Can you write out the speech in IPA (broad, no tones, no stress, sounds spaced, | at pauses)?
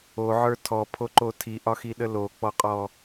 o ʕ ə˞ tʰ ɔ pʰ o ǃ o tʰ i ʔ ɒ x i ɗ ə l o k͡p ɔ qʼ ɔ